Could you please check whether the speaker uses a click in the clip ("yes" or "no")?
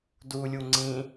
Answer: yes